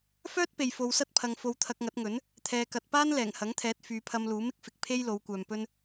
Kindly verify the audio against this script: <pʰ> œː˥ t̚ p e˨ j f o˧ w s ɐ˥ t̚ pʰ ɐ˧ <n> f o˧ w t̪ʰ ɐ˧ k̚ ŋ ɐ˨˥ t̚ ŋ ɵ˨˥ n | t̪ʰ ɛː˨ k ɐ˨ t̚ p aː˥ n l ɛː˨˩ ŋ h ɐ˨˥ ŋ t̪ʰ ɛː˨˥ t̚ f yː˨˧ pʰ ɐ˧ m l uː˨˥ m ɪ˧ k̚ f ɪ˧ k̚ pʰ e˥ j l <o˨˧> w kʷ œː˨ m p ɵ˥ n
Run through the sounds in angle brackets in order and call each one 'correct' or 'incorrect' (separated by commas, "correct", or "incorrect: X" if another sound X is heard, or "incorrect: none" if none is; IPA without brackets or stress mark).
incorrect: f, incorrect: ŋ, correct